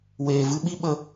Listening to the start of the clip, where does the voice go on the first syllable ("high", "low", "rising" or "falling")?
low